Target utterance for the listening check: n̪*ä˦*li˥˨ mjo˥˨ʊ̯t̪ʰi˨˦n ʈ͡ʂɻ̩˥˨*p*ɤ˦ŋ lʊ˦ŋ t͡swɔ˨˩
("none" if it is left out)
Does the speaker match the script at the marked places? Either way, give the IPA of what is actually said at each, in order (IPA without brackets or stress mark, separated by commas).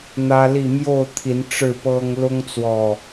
ä˦, p